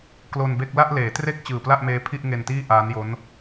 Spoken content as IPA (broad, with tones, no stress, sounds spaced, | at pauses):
k l o˧ n b e˥˩ k̚ l a˥˩ ʔ l eː˩˦ t r e˥˩ k̚ t͡ɕ ɯː˨˩ p l a˥˩ ʔ m eː˦˥ pʰ i˥˩ ʔ ŋ e˧ n t iː˥˩ ʔ aː˦˥ n j o˦˥ n